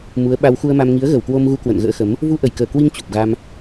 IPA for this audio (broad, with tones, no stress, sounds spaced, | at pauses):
m u˨˦ ə̯ ɓ a˧ w x u˧ ə̯ m a˧ m ŋ i˨˦ ə̯ ɣ ə˧˩ w k w o˧ m ɣ u˧ k w ə̰˧˨ n ɣ ə̰ː˧˥ x ə˨˦ m | v u˧ ʔ ə˧˩ j k əː˧˩ k w i˧ ŋ t͡ɕ u˨˩ p̚ ɣ a˧ m